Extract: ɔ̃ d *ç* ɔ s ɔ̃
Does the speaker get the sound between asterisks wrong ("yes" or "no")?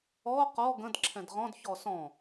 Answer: no